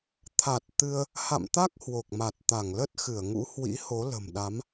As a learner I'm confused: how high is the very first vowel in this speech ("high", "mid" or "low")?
low